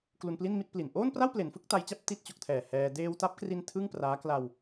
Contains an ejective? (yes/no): no